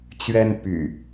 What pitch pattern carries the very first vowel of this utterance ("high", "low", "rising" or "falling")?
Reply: high